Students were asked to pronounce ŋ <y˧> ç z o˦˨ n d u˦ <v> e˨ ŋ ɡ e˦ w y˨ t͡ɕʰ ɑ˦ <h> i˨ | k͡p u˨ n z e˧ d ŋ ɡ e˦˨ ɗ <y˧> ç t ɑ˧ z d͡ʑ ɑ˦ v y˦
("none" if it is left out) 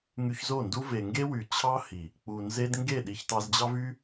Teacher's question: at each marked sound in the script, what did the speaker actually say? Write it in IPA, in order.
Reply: y˧, v, h, i˧

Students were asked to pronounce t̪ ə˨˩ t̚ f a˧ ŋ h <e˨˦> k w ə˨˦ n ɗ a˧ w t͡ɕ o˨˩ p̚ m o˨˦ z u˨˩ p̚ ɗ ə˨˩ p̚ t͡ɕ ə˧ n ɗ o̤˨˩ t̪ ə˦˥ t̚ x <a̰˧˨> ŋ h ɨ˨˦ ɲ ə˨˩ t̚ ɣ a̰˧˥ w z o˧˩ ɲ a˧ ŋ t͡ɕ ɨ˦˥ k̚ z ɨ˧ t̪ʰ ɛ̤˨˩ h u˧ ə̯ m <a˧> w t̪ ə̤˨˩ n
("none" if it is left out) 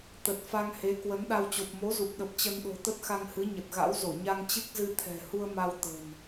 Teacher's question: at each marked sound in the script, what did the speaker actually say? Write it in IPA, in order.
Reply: e˨˦, a˧, a˧

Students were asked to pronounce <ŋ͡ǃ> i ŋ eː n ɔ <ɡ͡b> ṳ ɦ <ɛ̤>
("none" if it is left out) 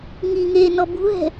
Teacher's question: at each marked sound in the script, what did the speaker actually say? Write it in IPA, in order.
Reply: ŋ, b, ɛ̤

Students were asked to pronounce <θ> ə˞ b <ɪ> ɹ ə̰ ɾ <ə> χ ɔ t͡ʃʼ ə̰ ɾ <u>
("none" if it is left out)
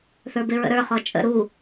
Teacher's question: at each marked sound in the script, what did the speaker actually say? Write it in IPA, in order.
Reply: θ, ɪ, ə˞, u

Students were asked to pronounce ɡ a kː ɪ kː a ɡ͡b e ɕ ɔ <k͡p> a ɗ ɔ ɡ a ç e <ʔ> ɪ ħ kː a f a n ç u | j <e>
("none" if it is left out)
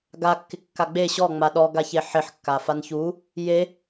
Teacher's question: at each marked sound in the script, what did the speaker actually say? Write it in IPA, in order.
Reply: ŋ͡m, ħ, e

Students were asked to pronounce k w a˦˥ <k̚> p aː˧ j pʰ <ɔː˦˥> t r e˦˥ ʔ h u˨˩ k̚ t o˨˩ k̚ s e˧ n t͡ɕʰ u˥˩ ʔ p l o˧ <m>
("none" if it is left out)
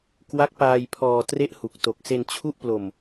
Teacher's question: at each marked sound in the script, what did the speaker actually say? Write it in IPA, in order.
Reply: k̚, ɔː˧, m

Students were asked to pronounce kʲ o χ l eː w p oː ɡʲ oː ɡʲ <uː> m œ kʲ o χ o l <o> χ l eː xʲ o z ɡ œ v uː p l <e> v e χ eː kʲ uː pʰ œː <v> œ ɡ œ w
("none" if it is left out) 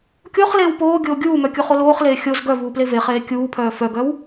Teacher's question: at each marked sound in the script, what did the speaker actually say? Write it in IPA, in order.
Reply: uː, oː, e, f

